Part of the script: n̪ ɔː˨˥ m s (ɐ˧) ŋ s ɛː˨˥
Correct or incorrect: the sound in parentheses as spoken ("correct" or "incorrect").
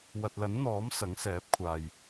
incorrect